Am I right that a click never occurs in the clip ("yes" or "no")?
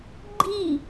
no